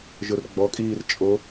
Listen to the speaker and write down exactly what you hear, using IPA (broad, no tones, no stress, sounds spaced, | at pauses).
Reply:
ʒ ʊ r ɡ͡b ɔ kʼ iː r t͡ʃʼ o